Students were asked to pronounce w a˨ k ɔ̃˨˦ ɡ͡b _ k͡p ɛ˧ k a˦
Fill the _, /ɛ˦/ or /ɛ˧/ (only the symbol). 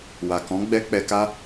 ɛ˧